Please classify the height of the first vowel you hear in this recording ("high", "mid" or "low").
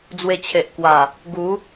mid